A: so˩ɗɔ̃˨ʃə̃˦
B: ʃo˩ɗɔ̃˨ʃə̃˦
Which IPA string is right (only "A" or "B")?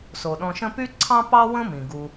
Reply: A